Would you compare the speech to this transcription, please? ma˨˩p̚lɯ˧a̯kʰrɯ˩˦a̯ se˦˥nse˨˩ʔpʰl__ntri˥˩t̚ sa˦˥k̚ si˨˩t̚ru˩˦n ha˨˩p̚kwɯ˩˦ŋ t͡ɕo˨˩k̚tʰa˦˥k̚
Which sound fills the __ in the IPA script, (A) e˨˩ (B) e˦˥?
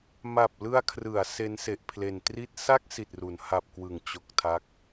A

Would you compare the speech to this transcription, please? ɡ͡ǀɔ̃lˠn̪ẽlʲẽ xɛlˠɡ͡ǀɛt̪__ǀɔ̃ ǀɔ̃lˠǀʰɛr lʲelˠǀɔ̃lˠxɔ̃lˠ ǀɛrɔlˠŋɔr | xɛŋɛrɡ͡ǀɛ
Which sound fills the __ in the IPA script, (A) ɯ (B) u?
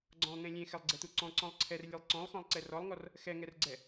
B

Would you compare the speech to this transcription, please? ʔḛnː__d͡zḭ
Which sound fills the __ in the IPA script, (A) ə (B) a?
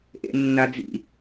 B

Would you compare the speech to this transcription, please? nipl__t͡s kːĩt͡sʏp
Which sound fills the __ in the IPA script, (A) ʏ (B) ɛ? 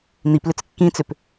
A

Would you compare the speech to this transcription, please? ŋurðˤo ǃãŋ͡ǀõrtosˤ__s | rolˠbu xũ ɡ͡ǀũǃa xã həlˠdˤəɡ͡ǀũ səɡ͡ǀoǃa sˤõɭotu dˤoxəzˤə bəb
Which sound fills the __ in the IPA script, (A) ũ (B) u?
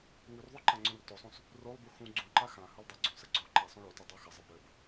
A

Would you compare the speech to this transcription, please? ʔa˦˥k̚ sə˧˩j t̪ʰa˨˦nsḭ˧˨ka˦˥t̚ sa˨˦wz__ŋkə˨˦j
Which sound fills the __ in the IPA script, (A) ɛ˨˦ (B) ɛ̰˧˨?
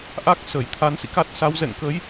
B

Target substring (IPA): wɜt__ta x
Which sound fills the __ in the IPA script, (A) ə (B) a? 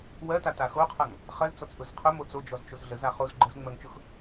B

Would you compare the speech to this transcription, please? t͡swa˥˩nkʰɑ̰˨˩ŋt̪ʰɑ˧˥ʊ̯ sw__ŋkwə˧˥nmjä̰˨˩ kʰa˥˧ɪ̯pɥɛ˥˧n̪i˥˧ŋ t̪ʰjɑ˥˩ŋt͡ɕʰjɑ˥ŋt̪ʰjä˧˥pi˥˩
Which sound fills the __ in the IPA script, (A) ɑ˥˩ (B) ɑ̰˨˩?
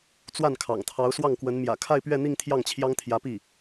A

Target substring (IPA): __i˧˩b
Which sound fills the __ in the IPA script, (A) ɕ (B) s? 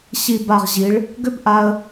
A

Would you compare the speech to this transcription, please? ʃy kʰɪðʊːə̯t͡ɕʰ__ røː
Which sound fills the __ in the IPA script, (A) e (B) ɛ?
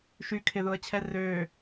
B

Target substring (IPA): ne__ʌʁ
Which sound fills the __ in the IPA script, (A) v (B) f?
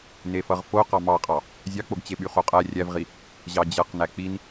B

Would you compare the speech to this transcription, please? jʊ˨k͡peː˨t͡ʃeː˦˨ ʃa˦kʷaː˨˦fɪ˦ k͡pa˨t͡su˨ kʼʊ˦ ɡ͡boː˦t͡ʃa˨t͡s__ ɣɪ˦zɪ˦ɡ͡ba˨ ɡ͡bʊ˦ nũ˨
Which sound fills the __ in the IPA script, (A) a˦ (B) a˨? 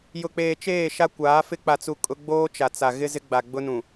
B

